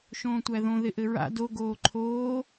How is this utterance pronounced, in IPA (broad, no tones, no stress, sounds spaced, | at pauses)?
ʃ õː tʷ æ ð õ ð ɪ ʔ ɘ ɹ a̰ d o ɡ oː ǃʰ oː